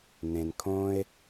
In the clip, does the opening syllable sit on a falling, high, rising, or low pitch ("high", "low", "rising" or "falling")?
low